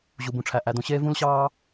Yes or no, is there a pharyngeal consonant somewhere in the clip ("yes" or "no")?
no